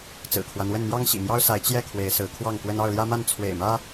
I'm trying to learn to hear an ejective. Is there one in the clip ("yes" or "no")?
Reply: no